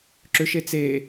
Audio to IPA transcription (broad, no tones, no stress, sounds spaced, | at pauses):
ǁ ʏ ʃ e t͡s e